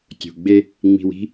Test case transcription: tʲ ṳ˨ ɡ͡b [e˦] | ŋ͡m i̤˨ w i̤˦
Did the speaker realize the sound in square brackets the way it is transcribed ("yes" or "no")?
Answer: yes